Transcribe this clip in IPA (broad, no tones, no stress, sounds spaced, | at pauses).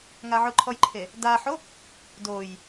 ŋ a ʕ ʊ ǃʰ ɔ j ǃʰ e | d a ħ o | d o j